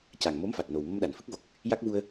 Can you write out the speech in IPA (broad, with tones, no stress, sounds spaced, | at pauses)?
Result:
c a˨˩ ŋ m o˧˥ m f a˨˩ t̚ n o˨˩ w m ə˧ m ɗ a˨˩˨ n f ɨ˦˥ k̚ v o˨˩ k̚ | j a˦˥ k̚ v u˧ ə̯